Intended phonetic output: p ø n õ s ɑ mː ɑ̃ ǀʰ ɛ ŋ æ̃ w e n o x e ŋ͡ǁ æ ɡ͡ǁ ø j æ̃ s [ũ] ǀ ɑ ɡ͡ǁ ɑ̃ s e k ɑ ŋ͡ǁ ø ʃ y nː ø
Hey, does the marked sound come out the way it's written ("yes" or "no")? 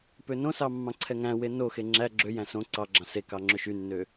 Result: no